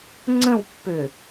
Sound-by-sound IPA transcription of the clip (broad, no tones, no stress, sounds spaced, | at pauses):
ŋ͡ǀ ə̃ w pː ø